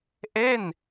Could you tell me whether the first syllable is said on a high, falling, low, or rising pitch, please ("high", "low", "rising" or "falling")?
falling